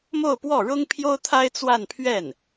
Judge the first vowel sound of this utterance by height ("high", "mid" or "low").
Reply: mid